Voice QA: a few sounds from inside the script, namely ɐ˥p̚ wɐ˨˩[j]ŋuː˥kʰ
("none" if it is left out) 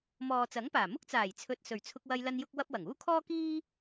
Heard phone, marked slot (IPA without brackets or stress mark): none